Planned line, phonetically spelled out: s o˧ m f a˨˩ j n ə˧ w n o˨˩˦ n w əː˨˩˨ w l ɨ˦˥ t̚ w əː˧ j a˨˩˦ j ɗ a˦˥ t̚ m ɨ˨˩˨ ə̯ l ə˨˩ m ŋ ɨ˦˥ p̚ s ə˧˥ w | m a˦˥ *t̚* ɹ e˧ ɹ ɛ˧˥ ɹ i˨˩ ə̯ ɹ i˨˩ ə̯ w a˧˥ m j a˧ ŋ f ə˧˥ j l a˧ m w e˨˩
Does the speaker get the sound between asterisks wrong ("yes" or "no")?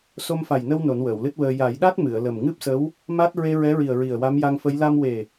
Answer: no